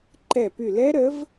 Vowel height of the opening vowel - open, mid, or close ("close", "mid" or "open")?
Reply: mid